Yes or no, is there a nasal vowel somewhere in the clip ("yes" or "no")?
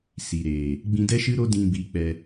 yes